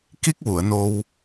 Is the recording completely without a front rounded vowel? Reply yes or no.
yes